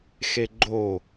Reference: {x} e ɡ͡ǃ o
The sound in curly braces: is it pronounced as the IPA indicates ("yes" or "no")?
yes